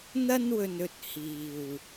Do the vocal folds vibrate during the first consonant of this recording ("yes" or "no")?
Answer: yes